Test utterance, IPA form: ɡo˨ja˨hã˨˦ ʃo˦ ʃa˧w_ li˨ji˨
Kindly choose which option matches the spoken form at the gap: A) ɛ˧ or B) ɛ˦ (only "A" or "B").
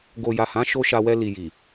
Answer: A